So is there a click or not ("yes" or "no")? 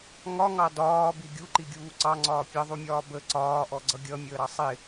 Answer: yes